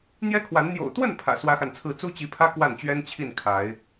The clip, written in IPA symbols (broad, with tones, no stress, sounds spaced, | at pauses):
n̪ j ɛ˦ kʰ w a˨˦ n n̪ j o̰˨˩ ʊ̯ t̪ w ə˥˨ n pʰ ä̰˨˩ s w ä˦ x a˨ n t͡sʰ ɹ̩˥˨ t͡s u˦ t͡ɕ i˨˦ pʰ ä˦ k w a˥˨ n t͡ɕ ɥ ɛ˦ n t͡ɕʰ i˥˨ n kʰ a˨˦ ɪ̯